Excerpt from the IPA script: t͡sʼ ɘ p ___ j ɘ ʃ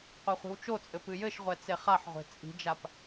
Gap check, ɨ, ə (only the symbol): ɨ